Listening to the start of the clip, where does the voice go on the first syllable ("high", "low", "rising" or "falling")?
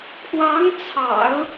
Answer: rising